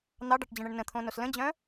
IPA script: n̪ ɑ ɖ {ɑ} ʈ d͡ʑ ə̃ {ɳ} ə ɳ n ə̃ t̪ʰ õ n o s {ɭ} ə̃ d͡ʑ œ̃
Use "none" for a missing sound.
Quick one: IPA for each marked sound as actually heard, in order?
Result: ɑ, ɳ, l

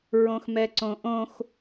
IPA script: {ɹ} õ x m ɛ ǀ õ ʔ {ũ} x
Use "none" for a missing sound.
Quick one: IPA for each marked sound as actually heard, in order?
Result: ɹ, õ

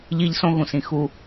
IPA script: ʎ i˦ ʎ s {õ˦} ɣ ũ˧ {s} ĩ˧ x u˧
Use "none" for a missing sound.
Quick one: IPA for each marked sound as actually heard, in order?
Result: õ˦, s

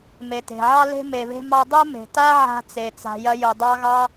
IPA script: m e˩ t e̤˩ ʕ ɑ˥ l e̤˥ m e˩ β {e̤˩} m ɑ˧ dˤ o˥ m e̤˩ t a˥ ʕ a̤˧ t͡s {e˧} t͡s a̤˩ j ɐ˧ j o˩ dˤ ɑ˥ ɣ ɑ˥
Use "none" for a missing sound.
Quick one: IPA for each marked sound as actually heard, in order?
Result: e̤˧, e˩

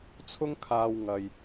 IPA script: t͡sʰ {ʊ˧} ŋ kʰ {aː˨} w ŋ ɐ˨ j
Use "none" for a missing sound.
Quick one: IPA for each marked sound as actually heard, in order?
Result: ʊ˧, aː˨

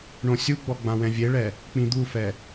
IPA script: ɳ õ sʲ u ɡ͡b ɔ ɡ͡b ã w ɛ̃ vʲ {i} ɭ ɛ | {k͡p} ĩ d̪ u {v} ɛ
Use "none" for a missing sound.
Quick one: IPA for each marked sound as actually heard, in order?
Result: e, k͡p, f

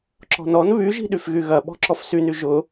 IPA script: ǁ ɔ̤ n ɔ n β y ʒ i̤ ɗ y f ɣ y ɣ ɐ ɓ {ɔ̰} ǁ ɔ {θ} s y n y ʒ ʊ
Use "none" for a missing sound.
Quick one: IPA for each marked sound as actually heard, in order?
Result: ɔ̤, f

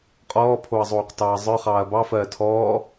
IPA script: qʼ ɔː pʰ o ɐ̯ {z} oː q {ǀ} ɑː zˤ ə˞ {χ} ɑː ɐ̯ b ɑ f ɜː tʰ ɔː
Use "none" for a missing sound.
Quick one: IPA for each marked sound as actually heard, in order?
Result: zˤ, t, χ

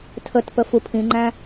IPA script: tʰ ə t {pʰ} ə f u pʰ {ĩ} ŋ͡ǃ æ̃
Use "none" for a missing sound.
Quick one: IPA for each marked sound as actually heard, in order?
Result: p, ĩ

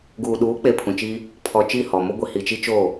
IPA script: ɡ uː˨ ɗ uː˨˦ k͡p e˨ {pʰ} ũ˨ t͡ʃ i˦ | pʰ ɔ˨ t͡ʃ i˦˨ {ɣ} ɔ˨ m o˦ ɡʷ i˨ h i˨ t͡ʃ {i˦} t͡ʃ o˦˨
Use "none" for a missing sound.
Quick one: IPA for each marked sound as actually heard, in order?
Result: pʰ, h, i˦

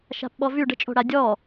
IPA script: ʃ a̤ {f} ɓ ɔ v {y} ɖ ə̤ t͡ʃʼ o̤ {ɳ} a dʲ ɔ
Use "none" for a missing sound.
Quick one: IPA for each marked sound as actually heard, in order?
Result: p, y, ɽ

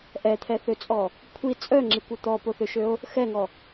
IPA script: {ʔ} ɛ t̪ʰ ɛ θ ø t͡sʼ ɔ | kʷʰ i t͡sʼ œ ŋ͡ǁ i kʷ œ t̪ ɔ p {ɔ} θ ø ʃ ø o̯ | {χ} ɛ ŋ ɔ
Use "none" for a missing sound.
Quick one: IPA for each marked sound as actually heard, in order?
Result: ʔ, o, x

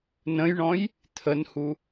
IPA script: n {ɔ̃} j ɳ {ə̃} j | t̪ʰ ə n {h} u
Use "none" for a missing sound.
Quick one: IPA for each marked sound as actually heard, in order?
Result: ə̃, ɔ̃, h

